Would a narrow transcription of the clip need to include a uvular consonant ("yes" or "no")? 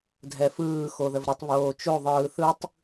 no